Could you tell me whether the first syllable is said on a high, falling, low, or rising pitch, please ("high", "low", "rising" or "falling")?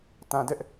low